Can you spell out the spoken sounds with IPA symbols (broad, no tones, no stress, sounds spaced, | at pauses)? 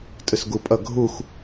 tʼ ɯ s ɡ u pʼ ʌ ɡʱ u x